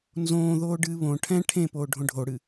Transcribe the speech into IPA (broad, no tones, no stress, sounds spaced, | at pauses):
n z õː ð oː ɖ ɨː β õ ʈʰ ɛ̃ ʈʰ ẽ p oː ɖʱ õ ɖʱ o ɽ ɨ